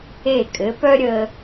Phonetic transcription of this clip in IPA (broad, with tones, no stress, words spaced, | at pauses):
e˧˩kʼɘ˩˧pœ˥ ɾʲə˧